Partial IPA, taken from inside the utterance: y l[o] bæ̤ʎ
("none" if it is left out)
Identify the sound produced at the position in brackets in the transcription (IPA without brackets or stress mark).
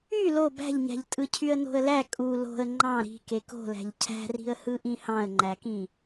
o